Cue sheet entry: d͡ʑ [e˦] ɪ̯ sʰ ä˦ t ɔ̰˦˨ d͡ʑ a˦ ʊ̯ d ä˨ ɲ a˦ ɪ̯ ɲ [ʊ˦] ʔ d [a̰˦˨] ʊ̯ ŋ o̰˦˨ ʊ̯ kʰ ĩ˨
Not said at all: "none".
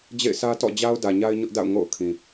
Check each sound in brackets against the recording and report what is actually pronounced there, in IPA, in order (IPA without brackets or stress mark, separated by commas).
ḛ˦˨, ʊ˦, a̰˦˨